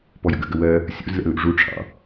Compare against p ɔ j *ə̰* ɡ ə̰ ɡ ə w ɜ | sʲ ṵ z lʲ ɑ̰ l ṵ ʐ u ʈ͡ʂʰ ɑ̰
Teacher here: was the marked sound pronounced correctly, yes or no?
yes